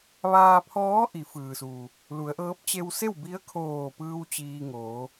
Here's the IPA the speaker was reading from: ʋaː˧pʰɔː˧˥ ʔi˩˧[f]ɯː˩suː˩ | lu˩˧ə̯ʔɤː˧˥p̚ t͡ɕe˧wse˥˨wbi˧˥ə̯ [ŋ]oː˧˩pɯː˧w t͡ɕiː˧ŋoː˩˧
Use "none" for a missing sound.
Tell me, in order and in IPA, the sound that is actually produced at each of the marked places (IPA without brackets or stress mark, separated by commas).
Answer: f, kʰ